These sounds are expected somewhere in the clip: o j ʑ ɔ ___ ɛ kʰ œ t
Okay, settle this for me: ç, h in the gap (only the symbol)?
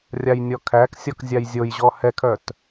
h